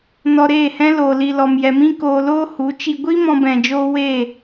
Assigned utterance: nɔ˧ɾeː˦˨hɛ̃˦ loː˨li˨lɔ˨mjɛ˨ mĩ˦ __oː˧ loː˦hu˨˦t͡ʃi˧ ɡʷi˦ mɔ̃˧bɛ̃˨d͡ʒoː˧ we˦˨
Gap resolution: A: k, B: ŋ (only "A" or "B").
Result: A